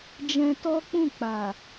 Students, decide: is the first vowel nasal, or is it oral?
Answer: nasal